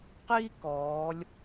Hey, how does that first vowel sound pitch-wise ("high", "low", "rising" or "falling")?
high